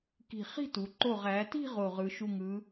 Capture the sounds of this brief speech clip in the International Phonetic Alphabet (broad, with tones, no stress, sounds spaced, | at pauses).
k i̤˧˩ χ i̤˥˧ t u˩˧ ǃ o˧˩ ʁ æ˩˧ t i̤˥˧ ʁ o˧˩ ʁ ɯ˩˧ ʃ u˧˩ ŋ ɯ˩˧